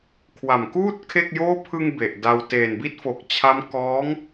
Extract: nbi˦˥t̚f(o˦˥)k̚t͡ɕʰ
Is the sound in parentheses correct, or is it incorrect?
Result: incorrect